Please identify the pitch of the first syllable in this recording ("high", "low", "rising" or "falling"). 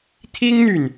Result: high